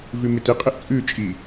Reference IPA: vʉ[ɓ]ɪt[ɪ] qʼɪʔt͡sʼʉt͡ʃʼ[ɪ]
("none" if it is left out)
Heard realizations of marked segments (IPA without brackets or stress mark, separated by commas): m, ɪ, i